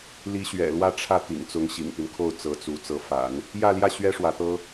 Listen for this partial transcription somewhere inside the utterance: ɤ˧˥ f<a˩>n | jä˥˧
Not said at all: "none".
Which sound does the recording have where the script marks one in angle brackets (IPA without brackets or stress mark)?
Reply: a̰˨˩˦